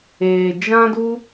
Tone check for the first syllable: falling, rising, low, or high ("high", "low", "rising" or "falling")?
low